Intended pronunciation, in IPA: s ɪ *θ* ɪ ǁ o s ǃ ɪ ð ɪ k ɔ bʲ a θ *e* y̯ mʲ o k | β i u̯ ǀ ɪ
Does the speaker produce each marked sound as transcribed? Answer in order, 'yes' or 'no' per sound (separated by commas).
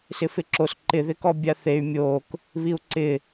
no, yes